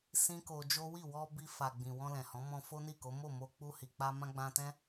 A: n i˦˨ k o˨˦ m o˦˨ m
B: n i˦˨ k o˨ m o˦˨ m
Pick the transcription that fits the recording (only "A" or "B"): A